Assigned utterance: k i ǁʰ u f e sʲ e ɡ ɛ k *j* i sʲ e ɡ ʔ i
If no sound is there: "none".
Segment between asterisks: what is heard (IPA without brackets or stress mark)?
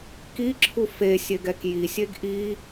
j